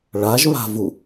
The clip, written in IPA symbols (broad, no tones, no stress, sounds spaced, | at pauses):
ɭ a ʒ β a̤ v u